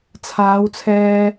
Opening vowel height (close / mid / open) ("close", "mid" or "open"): open